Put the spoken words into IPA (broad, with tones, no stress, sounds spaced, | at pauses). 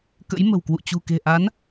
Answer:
k ə̰˧˥ j m ə̤˨˩ w k w ṵ˧˨ t͡ɕ ṳ˨˩ k e̤˨˩ ʔ a˨˦ n